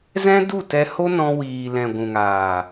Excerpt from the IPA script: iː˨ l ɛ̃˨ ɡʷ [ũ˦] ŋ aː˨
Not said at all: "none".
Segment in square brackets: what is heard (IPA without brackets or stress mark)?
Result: ũ˨